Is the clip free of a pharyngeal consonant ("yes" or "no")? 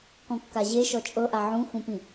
no